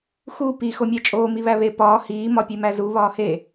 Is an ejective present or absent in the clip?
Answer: present